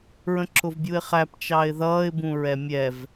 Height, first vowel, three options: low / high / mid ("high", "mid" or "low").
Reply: mid